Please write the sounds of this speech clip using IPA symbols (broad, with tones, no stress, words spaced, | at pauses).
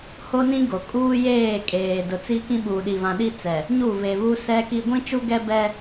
ho˦nĩ˦ɡo˨ kʼuː˦jeː˦˨kʼeː˨dʊ˨ t͡si˦kĩ˦ ɓuː˨ɗi˨βã˨ ɗi˦t͡sɛ˨ | ɲu˦˨ βe˨ βu˦sɛ˦ki˦ ɡʷĩ˦t͡ʃu˦ɡɛ˦bɛ˦